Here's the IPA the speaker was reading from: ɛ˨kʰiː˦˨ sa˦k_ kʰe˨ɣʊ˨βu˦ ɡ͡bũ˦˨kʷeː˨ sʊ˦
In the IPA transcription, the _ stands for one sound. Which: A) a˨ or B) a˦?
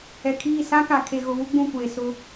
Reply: A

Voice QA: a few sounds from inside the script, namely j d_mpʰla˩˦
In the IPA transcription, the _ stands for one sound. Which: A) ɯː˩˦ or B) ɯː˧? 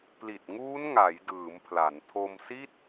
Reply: A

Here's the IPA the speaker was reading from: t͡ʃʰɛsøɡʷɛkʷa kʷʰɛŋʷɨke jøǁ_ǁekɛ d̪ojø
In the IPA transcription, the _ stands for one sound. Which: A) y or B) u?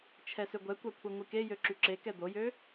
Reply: A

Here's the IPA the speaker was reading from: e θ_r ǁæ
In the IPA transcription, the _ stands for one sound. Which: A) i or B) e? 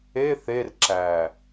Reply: B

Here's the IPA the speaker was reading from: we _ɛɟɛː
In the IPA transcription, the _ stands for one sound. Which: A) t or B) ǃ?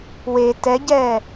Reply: A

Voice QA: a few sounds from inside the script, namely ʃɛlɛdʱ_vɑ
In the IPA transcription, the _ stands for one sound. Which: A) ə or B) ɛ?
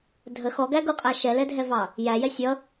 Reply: B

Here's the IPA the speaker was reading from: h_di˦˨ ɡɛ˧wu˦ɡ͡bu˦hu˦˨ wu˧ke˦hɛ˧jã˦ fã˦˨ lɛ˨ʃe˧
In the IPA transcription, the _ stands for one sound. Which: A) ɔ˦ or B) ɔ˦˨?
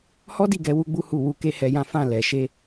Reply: A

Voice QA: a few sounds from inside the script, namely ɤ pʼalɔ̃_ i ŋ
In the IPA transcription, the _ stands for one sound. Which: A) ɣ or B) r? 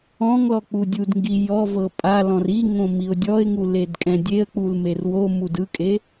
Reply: B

